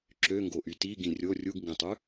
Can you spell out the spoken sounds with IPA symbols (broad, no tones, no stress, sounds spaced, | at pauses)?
ǁ ø ŋ ɡ o ʔ y t i ɡ ĩ rʲ o rʲ u ɡ ŋ ɡ ĩ tˤ ʉ